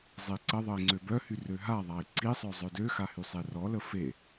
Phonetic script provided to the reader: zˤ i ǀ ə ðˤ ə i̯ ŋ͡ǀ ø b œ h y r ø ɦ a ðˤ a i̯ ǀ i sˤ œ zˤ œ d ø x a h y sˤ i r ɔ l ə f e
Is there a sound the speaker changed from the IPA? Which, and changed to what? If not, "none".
none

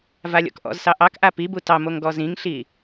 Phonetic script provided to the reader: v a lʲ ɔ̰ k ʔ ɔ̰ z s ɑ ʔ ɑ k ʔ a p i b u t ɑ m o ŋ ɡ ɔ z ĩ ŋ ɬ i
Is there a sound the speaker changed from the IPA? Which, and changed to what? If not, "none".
none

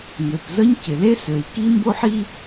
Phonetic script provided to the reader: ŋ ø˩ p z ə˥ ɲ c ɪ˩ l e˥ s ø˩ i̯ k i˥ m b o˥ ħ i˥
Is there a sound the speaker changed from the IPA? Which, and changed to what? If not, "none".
none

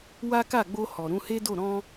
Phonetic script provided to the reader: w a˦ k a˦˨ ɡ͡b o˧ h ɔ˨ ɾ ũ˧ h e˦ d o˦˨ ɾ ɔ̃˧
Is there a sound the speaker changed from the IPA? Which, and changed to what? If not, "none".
none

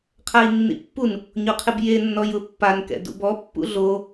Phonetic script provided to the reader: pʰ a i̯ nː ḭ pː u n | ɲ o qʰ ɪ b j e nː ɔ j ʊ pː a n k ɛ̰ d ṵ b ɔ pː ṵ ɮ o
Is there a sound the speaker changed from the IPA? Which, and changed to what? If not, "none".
pʰ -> qʰ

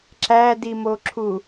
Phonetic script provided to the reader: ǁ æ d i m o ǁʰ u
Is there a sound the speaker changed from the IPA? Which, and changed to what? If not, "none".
none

